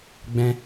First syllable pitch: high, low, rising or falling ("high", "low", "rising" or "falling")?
high